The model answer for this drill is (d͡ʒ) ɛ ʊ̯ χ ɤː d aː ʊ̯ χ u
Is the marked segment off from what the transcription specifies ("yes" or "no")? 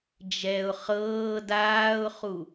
no